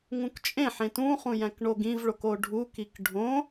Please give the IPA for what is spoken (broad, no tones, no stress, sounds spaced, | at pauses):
ŋ ũ k t͡ʃʼ ẽ ħ ẽ t ũ χ ũ j æ̃ k ɳ o ɡ ĩ v ɭ o k o ɖʱ u k i k ɖʱ õ